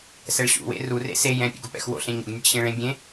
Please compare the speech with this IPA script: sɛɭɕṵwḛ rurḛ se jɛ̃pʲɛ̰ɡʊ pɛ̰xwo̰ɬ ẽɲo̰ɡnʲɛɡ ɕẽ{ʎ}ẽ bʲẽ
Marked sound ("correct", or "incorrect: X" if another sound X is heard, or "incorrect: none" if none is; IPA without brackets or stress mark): incorrect: ɭ